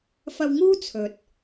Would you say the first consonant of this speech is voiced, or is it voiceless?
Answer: voiceless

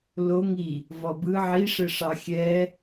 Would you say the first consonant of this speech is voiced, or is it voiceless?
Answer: voiced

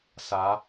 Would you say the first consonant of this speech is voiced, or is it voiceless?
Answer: voiceless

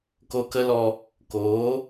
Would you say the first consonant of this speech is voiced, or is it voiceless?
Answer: voiceless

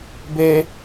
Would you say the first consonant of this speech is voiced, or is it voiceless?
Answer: voiced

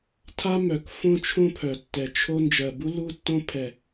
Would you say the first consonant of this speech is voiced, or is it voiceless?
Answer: voiceless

